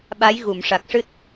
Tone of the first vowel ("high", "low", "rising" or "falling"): rising